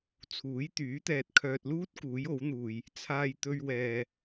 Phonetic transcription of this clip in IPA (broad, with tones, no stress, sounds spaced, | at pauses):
t͡sʰ uː˨˥ j t̪ yː˨˥ t̪ ɛː˨ t̚ kʰ œː˨ t̚ l uː˥ t̚ k uː˨˥ j o˨˥ w n̪ uː˨ j | t͡sʰ aː˧ j t̪ ɵ˧ ɥ w ɛː˨